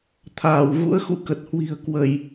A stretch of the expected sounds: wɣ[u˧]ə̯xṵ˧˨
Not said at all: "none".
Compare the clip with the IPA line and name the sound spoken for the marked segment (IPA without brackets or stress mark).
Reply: ṵ˧˥